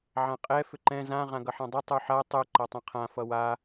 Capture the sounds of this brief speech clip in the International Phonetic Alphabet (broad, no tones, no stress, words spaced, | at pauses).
ʕãqʼɛ fʏǃɛ̃ zã ʁãɡʌħãdˤʌ tˤuħa tˤu ǃatˤɛ̃qʰã fʌwa